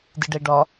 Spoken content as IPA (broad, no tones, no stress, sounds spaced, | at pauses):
d ɨ ɖ ɛ ɖ ɒ